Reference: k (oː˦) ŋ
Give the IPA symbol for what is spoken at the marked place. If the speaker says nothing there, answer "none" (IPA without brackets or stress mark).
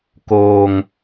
oː˨